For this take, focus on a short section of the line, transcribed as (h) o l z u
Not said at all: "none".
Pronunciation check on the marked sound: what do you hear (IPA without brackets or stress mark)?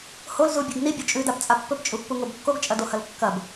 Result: h